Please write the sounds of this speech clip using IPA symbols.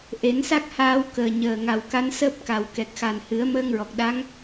ʔ e˨˩˦ n s a˦˥ k̚ h aː˧ w k əː˨˩ ɲ əː˨˩ ŋ a˨˩ w k a˧˥ n s əː˦˥ p̚ k a˨˩ w k ɛ˨˩ k̚ x a˨˩ n h ɨ˨˩˦ ə̯ m əː˧ ŋ ɹ ɔ˨˩ k̚ ɗ a˧˥ ŋ

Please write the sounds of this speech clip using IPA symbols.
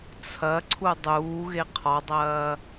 t͡sʰ ɐ ǀʰ u dˤ uː ɣ e qʰ ɒ dˤ ɐː

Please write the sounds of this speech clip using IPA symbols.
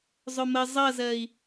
zˤ ʊ m ə zˤ ʌ z ɜ i̯

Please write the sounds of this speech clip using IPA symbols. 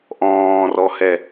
ʔ ɔ̃ː r ɔ h ɛ

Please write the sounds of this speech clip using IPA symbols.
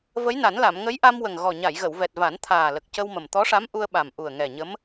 v ə˧˥ j n a˨˩˦ n l a˨˩˨ m ŋ ə˧˥ j ʔ a˧ m w ə˨˩ ŋ ɣ ɔ˨˩ ɲ a˨˩˨ j ɣ ə˨˩˨ w v ɛ˨˩ t̚ v a˨˩˦ n t̪ʰ aː˨˩ l ə˨˩ k̚ c ə˧ w m ə˨˩ m t̪ ɔ˧˥ ʂ a˧˥ m ʔ u˧ ə̯ ɓ a˨˩ m ʔ u˨˩ ə̯ ŋ ɛ˨˩ ɲ ə˧˥ m

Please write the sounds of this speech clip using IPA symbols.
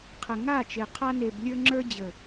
qʰ ə˨ ŋ a˦˨ t͡ʃ e˨ qʰ a˧ n e˨ b lʲ ə˞˧ ŋ͡ǁ ə˞˧ d͡ʑ ə˨

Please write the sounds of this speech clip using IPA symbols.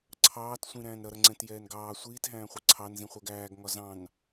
ǀʰ ɑː t sʷ ĩ ɾ æ̃ː n ɾ ʌ ɾ ʌ ŋ͡ǀ ɛ̃ t j ɛː n ɡ ɑː sʷ iː t ɦ æ̃ː χʷ ɛ ǀʰ ɑ n z ĩ χʷ ɜ ɡ æː ɡ ŋ ɒ z ɑ̃ n

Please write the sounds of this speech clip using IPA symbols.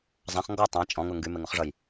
zˤ ã χ ŋ ɡ ɔ tˤ ã t͡ʃʼ ɔ̃ ŋ ʊ ŋ ɡ y m e ŋ ʊ χ ʐ ʌ j

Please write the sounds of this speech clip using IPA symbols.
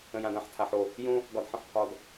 ə̃˨ j ã˨ d ã˨ ħ tʰ a˨ ħ o˨ | j õ˦ | ɡ ɒ˨ d ħ ə̃˨ ħ pʰ ɒ˨ d

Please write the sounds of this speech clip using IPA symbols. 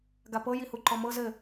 ɡ a p ɤ j i h u ǃ ɔ m ɤ z ɘ

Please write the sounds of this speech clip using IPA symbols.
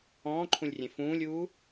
ɔ̃ː ǃʰ ũ lʲ rʲ ẽ f ũː lʲ uː

